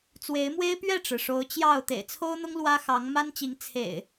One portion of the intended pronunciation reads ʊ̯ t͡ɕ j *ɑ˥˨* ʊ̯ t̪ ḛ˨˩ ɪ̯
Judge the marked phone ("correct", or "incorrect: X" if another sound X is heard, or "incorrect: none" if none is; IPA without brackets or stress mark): correct